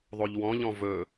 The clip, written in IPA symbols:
ðˤ o ʎ w ɔ̃ ʎ ɔ̃ v ɵ

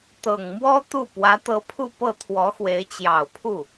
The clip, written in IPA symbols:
t̪ ɤ˨˩ ŋ m w ɔ˥ t̪ u˥˩ p w ä˧˥ t̪ ɤ˧˥ pʰ u˥˧ p ɤ˥˩ t̪ʰ w ɔ˧˥ x w e˧˥ ɪ̯ t͡ɕ j ɑ˨˩ ʊ̯ pʰ u˥˩

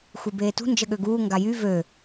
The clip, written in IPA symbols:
xʷ i b eː t ṳ n d͡ʒ ə ɠ ø ɡ uː ŋ ɡ a j y v ø

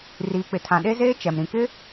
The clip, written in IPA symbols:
r iː˨ k͡p ɪ˨ tʰ ã˨ ɗ e˦ z eː˦ t͡ʃ ɛ˨ m ɾ ĩ˨ k ɪ˦

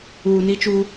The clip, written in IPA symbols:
uː˨ n i˦ t͡ʃ u˦

